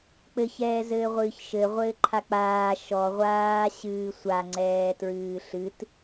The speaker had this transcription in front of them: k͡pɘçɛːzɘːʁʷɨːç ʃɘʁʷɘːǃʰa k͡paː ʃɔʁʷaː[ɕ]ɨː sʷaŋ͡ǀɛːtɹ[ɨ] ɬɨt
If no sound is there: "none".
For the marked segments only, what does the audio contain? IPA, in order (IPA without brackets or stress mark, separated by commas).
ɕ, ɨː